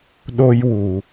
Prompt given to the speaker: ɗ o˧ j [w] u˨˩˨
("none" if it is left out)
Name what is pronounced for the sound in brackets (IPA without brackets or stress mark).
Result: w